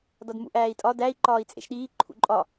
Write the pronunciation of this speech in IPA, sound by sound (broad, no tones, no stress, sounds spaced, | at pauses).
d ɒ d m ṵ ʔ æː i̯ tʼ ɒ d æ i̯ ǃ ɒː i̯ t͡sʼ ḛ ʃ ɗ iː ǃʰ ṵ ǃʼ ɒ